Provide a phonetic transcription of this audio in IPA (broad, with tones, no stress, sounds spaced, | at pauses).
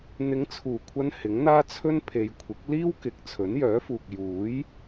n̪ ɪ˨˧ ŋ t͡sʰ uː˨˩ kʷʰ ɐ˧ n h ɪ˨˥ ŋ n̪ aː˥ t͡sʰ ɵ˥ n pʰ e˨ j kʷʰ ɪ˨˥ k̚ l iː˥ w k ɪ˨˥ k̚ t͡sʰ ɵ˨˥ n j œː˨˥ f uː˨ k̚ j uː˨˥ j